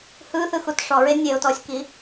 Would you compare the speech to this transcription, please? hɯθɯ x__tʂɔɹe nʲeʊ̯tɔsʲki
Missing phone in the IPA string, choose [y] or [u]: u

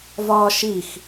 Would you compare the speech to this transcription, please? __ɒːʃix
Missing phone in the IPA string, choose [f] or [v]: v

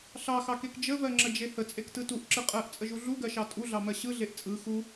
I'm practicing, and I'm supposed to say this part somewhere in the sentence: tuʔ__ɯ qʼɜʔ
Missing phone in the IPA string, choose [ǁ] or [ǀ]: ǁ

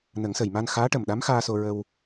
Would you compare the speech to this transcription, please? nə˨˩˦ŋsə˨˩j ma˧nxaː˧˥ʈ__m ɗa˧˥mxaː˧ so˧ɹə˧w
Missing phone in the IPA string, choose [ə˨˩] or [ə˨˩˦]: ə˨˩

